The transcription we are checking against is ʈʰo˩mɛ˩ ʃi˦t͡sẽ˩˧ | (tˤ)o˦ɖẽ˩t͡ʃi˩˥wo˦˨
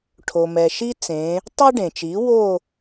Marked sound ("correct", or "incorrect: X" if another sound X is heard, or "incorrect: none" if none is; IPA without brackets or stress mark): correct